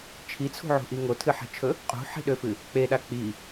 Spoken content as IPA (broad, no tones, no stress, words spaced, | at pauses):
t͡ʃʰit͡sʰṳʕṳʔi ŋotʰɨħi̤t͡ʃʰɵ | qʼṳħi̤ɗøfɨ | k͡peɗa k͡pi